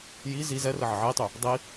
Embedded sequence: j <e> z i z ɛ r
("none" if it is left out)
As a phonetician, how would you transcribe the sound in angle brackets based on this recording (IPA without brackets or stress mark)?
i